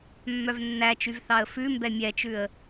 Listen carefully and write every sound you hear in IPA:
mːœvnːæt͡ʃyv θɑə̯fʉmbɛ mʲɛt͡ʃʉə̯

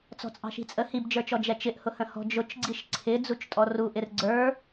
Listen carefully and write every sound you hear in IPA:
t͡sɔ̤t͡sʼɑ̤ʃi̤t͡sʼə hibd͡ʒə˞t͡ʃɔ d͡ʒɛt͡ʃɪʔhʊ hə̃hɔ̤d͡ʒʊt͡ʃɡ͡ǀiʃ ǀʰɪ d͡zut͡ʃtʼɔruʔɪr ɡ͡ǀə˞

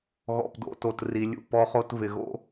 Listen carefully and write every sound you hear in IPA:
ɣɔ̰˨pdo̰˨to˨t ri˨lʲṵ˦˨pɔ˦χo˦t vɪ˨ɣo̰˦

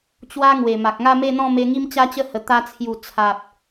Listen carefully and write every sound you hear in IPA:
t͡ɕwa˦ ŋwe˨˩ma˨k̚ ŋa˥˧me˥˧n̪ɔ̃˥˧ me˦ ŋi˦mt͡ɕa˦t͡ɕə˦hə˨˩ t̪a˧ t͡sʰju˨˩ t͡sʰa˨p̚

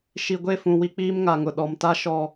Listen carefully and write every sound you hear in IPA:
ʃi˨ɡʷe˦˨fũ˨ wi˦k͡piː˦mŋa˨ŋʊ˨ ɗɔ˨mta˦ ʃɔ˨

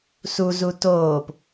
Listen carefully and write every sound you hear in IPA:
suzu toːp

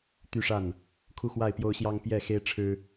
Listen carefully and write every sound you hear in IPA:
t̪y˥˨ʂa˥˨n | kʰu˥˨xwa˥˨ɪ̯pjo˦ʊ̯ɕjɑ˦ŋ pjɛ˥˨xe˦ɪ̯ʈ͡ʂʰɻ̩˦

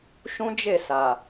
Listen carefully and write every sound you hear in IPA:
ʃũ˦d͡ʒe˦˨sa˨

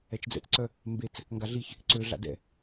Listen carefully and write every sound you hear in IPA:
ɛt͡ʃd͡zɛ̰t͡sǀœ | mbet͡s | ŋɡaɮiç | ǀø ɮa̰dɛ̰

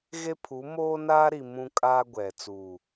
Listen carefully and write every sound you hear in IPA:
ɣe˦pʰu˨˦ moː˦naː˦ɾi˨ mũ˦kʼaː˦ɡʷɛ˨ t͡suː˨

